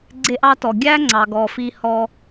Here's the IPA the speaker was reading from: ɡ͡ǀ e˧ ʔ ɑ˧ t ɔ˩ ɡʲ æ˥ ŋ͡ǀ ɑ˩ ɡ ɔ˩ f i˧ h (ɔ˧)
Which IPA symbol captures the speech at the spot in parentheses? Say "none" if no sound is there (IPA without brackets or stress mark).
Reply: ɔ˧